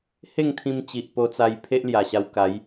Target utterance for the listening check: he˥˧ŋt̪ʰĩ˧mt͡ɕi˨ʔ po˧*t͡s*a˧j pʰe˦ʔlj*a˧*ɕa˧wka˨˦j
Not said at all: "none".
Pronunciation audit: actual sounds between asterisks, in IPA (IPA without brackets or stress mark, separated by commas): t͡s, a˨˩